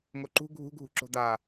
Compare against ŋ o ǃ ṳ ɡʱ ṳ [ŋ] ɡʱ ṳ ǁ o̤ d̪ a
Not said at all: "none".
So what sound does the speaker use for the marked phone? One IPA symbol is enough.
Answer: none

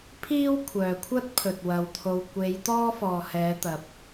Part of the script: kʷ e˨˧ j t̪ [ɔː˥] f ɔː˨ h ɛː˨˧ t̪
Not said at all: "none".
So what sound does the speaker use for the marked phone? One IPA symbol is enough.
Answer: ɔː˥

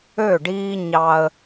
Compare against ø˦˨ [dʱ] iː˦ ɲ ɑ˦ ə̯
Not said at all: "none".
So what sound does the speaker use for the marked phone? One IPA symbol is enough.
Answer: ɖ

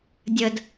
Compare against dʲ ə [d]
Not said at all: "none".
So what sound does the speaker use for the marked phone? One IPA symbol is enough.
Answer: d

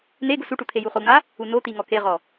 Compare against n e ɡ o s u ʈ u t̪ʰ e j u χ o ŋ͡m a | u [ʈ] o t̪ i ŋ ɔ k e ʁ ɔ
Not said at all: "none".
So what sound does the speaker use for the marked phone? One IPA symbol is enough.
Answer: n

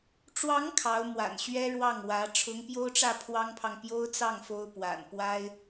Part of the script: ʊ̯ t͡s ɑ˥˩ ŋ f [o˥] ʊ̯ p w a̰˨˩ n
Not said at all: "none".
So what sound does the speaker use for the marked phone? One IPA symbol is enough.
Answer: o˥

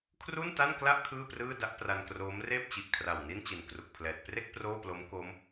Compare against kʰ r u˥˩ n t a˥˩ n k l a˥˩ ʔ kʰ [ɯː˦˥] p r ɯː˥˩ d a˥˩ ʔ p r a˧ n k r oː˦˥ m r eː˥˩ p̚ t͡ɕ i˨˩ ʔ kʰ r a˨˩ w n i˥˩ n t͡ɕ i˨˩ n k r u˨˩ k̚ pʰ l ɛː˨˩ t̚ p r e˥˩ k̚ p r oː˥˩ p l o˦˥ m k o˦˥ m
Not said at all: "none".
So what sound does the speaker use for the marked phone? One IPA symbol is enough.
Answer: ɯː˥˩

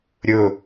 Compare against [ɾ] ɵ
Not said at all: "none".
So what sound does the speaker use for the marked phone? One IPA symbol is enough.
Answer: ɾʲ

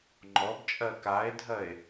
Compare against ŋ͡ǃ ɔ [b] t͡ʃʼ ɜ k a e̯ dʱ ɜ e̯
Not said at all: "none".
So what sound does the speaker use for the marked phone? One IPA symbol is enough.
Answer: b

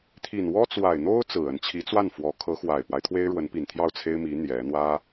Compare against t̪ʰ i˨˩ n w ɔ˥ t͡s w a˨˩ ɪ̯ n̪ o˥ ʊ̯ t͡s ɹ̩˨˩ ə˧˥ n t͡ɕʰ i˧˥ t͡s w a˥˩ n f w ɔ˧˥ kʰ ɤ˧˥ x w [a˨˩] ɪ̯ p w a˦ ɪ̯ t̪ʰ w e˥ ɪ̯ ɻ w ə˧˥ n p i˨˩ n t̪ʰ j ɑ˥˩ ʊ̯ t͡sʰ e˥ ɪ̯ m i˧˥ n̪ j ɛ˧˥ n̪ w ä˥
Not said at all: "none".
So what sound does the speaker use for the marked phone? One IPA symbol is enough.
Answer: a˨˩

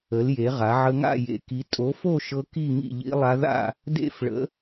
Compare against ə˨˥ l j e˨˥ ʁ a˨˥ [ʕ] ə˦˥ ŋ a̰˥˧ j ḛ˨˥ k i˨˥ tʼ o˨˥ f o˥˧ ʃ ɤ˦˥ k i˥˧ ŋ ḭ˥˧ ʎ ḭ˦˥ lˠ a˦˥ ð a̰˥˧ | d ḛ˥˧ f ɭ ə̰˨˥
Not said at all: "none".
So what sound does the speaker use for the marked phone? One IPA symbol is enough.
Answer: ʕ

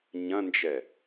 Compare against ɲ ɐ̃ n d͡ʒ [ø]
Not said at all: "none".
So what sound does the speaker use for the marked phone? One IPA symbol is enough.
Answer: ɛ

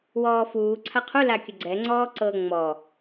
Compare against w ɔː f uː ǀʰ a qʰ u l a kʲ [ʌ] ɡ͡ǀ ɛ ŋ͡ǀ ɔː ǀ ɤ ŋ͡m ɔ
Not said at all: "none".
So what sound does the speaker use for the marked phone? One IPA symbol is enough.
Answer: ə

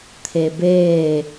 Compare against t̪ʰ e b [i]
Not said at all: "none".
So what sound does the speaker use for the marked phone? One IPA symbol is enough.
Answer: e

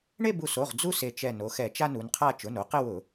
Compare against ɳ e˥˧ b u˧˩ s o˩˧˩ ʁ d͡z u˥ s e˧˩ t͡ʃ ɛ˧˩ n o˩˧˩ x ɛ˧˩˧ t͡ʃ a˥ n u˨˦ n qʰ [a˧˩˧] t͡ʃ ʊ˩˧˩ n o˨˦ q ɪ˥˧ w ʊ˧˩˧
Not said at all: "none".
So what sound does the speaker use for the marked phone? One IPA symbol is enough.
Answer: a˥˧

